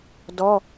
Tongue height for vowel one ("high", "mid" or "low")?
mid